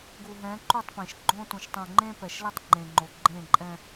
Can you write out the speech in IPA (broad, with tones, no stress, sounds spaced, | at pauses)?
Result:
ɡ u˨ ɦ ɛ̃˨˦ ǃ u˦˨ tˤ p ẽ˨ ʃ ɡ͡ǃ õ˦ t ũ˨ ʃ tˤ ũ˨ ŋ͡ǃ ẽ˦ p ɛ˨ ʃ l ɛ˦ tˤ ŋ͡ǃ ẽ˨ ŋ͡ǃ o˨ ɡ͡ǃ ẽ˦˨ ǃʼ ɛ̃˦